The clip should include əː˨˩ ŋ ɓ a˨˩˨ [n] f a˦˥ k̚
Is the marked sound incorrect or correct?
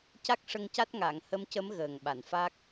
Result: correct